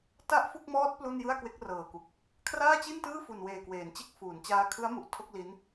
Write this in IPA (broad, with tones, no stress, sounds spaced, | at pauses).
t a˥˩ ʔ f u˥˩ k̚ m ɔː˦˥ t̚ p l u˥˩ n j ɯ˥˩ a̯ k w e˦˥ k̚ r ɤː˨˩ k u˨˩ k̚ | kʰ r aː˥˩ t͡ɕ i˥˩ n t ɯː˥˩ f u˨˩ n w eː˨˩ k w eː˩˦ n t͡ɕ e˦˥ k̚ f uː˩˦ n t͡ɕ aː˧ kʰ ɯ˦˥ a̯ m u˨˩ ʔ tʰ o˥˩ k̚ l i˦˥ n